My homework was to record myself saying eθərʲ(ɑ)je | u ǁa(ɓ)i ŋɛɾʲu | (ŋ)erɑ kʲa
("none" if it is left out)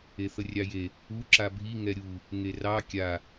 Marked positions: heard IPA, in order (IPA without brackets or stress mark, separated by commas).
ɑ, bʱ, ŋ